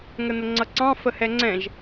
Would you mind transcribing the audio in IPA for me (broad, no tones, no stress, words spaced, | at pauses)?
ŋənəŋ͡ǀʌǀɑ̃ fəhɛŋ͡ǀɛ̃ʒ